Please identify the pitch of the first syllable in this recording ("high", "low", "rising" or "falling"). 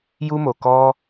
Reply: high